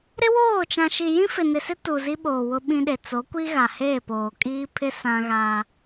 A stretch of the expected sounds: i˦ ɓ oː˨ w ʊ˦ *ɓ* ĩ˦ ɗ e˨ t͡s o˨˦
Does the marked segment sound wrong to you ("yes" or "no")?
no